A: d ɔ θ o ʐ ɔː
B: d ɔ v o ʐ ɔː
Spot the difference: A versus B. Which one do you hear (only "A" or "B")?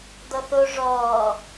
A